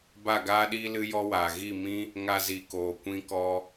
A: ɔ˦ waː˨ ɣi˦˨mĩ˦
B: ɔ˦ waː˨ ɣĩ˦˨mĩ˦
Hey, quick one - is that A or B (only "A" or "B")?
A